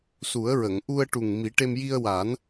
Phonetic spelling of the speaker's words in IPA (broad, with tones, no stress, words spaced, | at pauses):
su˨˩˦ə̯ɹə˨˩˨ŋ ʔu˧ə̯ ʈu˨˩ŋ mi˨˩˦ʈe˧m ji˧ə̯wa˨˩˦n